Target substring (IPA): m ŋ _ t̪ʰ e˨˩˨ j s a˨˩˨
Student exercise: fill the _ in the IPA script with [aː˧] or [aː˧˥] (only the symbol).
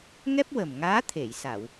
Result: aː˧˥